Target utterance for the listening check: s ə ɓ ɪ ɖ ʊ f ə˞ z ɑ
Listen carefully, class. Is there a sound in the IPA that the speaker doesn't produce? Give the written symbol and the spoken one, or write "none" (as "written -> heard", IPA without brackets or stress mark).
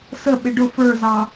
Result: none